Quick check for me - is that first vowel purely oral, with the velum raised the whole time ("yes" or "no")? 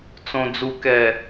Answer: no